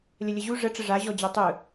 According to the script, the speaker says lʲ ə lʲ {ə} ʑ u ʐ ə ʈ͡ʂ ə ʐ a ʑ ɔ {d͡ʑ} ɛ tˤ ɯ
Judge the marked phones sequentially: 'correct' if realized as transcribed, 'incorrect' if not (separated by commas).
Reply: correct, correct